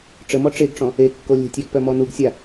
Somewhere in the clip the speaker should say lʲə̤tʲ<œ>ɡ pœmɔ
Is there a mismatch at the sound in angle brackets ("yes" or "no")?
yes